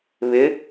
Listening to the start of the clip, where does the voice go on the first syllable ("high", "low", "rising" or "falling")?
rising